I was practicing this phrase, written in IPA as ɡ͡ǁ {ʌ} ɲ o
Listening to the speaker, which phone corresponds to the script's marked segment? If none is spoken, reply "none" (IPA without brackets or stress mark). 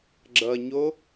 ʌ